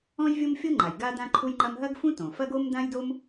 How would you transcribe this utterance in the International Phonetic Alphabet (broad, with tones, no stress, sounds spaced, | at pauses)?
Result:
ɔ̃˥ j vʲ ɤ˥ m fʲ ɤ˥ ŋ͡ǃ a˩ j ɡ a˥ d ã˥ ǃʰ u˥ j ŋ͡ǃ ɐ˥ m ɦ ɐ˥ ɡ f ũ˥ t õ˩ f ɐ˥ ɡ o˥ m d ã˥ j d o˥ m